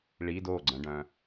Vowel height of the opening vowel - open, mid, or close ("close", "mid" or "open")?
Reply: close